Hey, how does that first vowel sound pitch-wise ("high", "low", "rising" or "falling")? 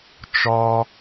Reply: high